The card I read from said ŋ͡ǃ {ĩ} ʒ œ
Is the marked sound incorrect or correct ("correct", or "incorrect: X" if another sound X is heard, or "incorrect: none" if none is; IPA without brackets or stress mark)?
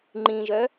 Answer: correct